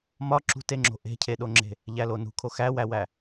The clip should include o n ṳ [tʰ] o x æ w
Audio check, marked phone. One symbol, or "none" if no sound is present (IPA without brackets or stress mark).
kʰ